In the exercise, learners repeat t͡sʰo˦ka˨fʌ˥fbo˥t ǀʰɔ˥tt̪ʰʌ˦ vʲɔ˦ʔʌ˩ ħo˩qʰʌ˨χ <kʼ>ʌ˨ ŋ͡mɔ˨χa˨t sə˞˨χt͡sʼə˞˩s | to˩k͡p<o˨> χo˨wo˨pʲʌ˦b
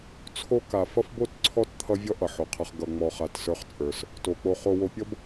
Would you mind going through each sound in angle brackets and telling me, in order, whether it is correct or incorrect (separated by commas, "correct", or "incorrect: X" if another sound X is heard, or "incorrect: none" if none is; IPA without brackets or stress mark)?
incorrect: ɡ, correct